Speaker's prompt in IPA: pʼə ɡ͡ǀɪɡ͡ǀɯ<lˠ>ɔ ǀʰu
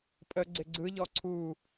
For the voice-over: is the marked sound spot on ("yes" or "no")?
no